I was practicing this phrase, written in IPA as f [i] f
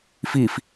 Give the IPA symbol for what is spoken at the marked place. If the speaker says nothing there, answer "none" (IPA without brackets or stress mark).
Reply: i